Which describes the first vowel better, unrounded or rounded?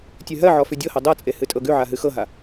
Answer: rounded